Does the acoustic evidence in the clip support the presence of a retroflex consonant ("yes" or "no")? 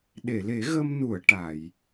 yes